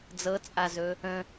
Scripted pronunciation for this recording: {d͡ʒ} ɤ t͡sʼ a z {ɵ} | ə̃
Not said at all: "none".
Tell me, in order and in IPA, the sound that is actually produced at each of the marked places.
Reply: d͡z, ɵ

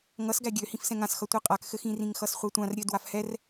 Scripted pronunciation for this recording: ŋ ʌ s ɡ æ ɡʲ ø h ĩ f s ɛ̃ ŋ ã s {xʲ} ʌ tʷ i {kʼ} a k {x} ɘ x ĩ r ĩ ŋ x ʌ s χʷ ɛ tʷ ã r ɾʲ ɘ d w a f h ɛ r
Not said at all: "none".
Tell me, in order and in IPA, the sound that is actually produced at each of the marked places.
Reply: x, qʼ, x

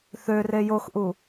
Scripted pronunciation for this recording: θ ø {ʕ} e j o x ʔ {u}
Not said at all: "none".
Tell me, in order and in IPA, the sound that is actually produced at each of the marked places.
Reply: r, u

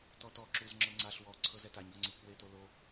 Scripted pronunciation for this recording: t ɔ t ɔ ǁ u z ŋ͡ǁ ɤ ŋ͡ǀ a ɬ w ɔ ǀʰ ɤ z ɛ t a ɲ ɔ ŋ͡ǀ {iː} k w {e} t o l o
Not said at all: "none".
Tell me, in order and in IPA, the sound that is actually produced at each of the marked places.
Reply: i, e

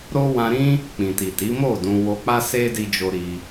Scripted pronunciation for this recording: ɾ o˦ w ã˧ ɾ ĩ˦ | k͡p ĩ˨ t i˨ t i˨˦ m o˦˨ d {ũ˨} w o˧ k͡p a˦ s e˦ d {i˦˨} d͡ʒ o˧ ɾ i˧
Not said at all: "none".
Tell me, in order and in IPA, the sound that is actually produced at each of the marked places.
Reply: ũ˧, i˧

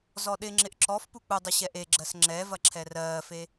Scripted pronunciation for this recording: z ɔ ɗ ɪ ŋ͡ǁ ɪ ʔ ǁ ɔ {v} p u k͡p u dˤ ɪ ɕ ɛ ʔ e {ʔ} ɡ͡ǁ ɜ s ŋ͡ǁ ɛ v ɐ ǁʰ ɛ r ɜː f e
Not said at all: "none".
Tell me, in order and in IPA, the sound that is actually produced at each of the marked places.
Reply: f, none

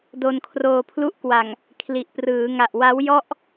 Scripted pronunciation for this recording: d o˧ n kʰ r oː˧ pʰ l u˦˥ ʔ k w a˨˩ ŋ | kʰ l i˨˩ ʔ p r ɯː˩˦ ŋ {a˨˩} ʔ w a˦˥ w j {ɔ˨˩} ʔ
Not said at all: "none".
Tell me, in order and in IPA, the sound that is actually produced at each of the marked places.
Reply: a˨˩, ɔ˥˩

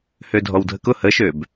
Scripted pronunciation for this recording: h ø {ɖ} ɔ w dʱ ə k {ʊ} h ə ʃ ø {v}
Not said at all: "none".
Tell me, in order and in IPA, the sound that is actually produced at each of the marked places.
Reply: dʱ, ʊ, b

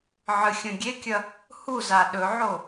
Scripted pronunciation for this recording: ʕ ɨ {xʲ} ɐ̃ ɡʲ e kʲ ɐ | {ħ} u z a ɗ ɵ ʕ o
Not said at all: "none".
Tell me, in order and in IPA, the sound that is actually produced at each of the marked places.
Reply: xʲ, h

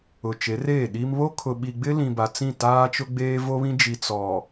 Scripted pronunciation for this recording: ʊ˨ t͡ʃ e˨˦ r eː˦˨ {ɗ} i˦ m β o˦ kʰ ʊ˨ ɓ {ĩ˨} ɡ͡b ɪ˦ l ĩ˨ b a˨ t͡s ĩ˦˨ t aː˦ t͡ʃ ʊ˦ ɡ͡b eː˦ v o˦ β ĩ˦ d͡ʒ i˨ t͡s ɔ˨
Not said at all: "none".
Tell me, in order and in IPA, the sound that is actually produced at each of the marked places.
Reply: ɗ, i˨

